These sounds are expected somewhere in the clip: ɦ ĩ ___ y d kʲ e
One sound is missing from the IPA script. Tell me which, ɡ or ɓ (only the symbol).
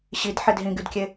ɡ